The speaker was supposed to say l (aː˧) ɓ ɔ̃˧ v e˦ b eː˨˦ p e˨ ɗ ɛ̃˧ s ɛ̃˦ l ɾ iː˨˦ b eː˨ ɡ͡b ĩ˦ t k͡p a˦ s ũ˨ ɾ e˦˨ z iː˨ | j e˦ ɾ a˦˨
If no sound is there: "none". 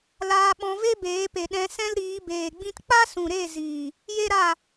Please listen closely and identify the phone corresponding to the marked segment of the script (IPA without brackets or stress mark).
aː˧